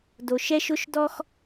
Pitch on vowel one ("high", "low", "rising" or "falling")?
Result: low